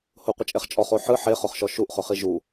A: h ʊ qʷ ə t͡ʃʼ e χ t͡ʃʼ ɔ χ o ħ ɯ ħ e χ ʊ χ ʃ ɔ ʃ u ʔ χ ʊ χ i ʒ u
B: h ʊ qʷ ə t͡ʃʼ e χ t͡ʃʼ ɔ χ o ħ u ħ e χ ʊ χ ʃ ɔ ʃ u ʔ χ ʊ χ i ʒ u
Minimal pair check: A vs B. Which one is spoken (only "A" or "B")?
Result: A